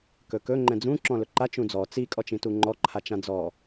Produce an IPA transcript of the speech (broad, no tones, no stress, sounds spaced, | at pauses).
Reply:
k ɵ k ɵ ŋ͡ǃ ɛ̃ d͡z ũ ǁ ɔ̃ l ɵ ǃ a t͡ʃ ũ d͡z ɔ t͡s i kʼ ɔ t͡ʃ ĩ t u ŋ͡ǃ ɔ ǃʰ a t͡ʃ ã d͡z ɔ